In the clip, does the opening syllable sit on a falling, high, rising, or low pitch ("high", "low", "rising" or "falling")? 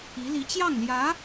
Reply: rising